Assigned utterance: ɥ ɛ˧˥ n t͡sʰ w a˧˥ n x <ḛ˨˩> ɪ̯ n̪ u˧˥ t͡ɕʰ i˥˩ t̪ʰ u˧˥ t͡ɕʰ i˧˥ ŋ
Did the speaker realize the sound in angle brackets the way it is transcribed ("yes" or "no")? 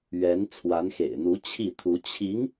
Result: yes